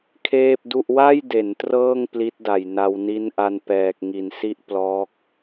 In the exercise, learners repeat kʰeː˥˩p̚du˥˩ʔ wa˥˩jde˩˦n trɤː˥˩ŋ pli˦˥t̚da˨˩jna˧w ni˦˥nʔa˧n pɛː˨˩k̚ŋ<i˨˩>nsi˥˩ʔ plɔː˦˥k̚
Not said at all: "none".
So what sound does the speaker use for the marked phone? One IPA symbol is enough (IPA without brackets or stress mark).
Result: i˩˦